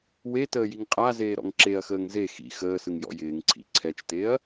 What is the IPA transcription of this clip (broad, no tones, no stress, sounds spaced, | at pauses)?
w e t əː j i ŋ qʼ a z eː ɾ ɔ̰ ŋ ǁ e ɐ̯ x əː ŋ z e x ḭ x əː s ɯ ŋ j ɔ̰ j ɪː ŋ ǀʰ ḭ ǀʰ ɛ t͡ʃ t e ɐ̯